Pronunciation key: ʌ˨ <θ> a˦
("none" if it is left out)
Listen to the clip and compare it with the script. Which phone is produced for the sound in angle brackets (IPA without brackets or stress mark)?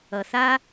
θ